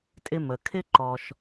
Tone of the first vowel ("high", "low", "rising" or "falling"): high